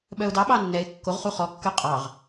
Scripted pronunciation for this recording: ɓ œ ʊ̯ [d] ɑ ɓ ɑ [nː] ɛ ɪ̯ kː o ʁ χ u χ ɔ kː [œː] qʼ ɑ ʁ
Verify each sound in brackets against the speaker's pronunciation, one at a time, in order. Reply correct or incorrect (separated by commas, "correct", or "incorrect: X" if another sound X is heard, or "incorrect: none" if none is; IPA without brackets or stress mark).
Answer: correct, correct, incorrect: œ